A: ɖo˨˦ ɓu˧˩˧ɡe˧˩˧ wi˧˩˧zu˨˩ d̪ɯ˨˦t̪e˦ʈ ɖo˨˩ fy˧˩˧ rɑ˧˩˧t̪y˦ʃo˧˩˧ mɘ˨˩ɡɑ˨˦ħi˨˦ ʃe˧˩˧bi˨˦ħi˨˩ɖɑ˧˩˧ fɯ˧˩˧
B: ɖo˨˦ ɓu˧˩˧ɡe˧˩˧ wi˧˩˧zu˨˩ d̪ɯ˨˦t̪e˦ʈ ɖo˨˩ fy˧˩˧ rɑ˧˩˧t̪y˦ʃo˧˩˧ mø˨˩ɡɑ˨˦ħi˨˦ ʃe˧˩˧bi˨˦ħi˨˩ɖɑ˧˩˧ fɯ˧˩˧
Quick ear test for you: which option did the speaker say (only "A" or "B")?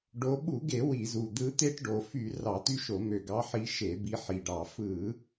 B